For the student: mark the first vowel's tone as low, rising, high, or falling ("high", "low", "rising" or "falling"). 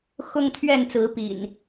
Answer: high